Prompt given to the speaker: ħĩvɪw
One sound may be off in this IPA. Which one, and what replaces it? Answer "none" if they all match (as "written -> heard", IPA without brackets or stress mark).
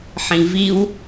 ɪ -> i